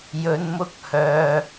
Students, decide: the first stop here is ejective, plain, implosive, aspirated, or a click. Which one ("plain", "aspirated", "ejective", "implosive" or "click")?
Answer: plain